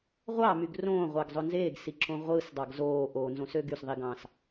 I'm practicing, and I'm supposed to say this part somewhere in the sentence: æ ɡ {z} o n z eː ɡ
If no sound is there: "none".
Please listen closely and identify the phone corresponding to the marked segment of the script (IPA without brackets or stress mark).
zˤ